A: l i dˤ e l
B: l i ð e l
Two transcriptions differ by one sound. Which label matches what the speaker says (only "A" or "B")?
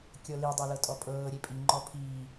A